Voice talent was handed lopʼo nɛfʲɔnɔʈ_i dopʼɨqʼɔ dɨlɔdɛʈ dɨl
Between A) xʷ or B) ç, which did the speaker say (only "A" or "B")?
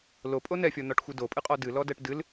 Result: A